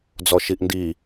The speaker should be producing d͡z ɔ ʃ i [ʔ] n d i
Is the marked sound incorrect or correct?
correct